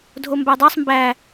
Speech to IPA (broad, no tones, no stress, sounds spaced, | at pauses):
dʱ o m b æ dˤ ɑ sˤ m b æ